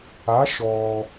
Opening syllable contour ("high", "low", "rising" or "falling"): rising